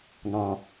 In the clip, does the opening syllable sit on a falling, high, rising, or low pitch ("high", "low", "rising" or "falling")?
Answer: low